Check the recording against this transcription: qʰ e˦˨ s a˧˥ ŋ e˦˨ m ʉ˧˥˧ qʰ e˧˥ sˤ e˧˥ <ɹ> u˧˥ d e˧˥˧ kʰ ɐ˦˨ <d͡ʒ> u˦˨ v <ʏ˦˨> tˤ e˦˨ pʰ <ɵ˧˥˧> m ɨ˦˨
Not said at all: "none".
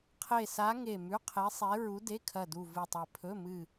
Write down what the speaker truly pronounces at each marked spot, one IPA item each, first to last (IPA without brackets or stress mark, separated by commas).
ɹ, d, ɨ˦˨, ɵ˧˥˧